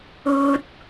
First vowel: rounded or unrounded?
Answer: rounded